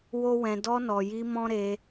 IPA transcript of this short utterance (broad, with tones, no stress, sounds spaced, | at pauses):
w o˦ w ɛ̃˧ d ɔ˧ n ɔ˨ j i˧ m ɔ̃˦ ɾ e˧